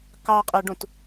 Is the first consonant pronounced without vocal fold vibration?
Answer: yes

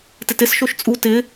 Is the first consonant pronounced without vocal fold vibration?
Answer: yes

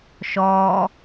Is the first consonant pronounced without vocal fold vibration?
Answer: yes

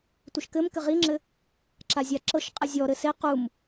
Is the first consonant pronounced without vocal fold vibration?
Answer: yes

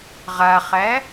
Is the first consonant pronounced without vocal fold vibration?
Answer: no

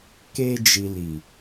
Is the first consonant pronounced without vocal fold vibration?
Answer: yes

